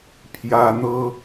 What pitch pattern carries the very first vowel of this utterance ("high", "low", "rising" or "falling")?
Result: high